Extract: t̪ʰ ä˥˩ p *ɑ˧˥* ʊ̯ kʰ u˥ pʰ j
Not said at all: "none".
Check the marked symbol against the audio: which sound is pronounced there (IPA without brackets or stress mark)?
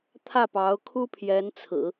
ɑ˧˥